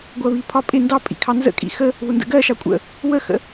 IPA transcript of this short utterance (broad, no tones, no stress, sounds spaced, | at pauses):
ɡʷ ɜ β i pʰ ɒ pʼ ɪ n d ɑ pʼ ḭ kʰ ɑ n z ə̰ kʼ ḭ x ə | β ʊ n d ə̰ ɡ ɜ ʃ ɑ kʷʼ ə̰ | w ə x ə̰